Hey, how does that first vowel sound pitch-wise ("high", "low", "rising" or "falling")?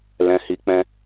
low